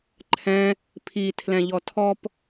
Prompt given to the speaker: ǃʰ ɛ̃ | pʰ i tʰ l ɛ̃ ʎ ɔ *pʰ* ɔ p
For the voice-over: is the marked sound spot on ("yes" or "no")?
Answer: no